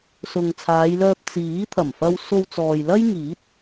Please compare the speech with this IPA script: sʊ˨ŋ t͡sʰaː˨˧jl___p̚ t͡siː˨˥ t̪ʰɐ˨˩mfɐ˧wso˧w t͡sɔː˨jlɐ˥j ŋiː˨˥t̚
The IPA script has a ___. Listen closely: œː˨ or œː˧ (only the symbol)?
œː˧